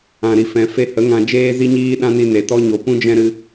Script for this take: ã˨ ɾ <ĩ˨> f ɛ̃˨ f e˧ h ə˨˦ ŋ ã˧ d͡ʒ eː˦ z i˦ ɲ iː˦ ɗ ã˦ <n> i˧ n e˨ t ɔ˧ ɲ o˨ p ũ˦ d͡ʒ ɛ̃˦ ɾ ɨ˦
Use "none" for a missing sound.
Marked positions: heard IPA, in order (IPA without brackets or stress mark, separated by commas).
i˨, n